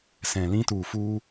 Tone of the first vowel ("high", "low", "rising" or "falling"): low